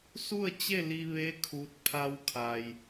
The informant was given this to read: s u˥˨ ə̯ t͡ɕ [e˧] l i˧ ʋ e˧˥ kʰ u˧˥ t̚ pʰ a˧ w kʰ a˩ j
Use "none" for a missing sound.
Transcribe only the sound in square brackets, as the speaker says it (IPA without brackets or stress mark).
e˥˨